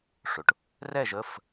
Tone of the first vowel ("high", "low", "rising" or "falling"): low